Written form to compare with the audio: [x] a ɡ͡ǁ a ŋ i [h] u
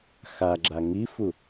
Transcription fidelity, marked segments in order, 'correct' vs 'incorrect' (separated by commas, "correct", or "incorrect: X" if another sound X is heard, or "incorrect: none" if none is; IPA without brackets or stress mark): correct, incorrect: f